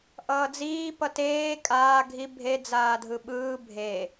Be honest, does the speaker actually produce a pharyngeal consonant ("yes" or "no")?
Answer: no